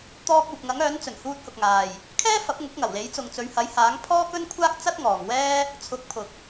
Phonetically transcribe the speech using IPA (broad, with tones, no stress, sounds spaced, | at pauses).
t̪ ɔː˧ k̚ uː˨ p̚ ŋ ɐ˨˥ ŋ œː˨˥ n t͡s ɵ˨˩ n h uː˧ t̚ h ʊ˨ k̚ ŋ aː˨ j | kʰ ɛː˥ f ɐ˨˥ p̚ ŋ ʊ˨˥ k̚ ŋ ɐ˨˩ w l e˨˥ j t͡s ʊ˨ ŋ t͡s ɵ˨˧ ɥ h ɐ˨˥ j h aː˨˥ ŋ pʰ ɔː˥ k ɵ˥ n kʷʰ aː˥ k̚ t͡s ɐ˥ t̚ ŋ ɔː˨ ŋ w ɛː˥ | t͡sʰ ʊ˨˥ k̚ pʰ ʊ˨ k̚